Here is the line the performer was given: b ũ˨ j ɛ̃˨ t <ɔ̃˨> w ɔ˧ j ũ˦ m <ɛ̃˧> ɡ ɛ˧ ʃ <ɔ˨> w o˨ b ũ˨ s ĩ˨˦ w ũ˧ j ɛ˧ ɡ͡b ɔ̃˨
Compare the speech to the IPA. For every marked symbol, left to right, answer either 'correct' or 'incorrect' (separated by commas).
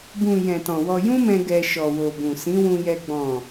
correct, correct, correct